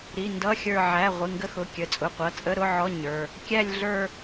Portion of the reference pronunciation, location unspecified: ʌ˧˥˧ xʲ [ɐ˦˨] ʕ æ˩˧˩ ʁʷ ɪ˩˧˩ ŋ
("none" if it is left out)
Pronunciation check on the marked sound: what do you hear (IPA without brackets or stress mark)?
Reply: ə˞˦˨